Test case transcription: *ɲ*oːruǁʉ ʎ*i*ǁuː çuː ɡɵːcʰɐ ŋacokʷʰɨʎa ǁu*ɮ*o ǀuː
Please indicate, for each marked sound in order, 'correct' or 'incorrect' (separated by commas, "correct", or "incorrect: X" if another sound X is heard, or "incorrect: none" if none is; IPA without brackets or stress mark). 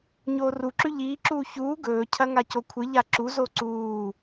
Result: correct, incorrect: iː, incorrect: z